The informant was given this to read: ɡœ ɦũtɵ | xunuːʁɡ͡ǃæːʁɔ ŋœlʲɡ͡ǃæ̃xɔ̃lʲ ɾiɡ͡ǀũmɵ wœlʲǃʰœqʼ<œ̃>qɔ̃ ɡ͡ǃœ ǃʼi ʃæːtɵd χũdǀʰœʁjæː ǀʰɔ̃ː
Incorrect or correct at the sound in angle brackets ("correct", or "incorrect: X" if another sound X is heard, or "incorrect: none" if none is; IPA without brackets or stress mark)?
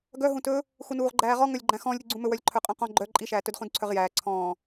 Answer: correct